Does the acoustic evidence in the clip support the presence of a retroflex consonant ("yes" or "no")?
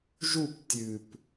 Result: no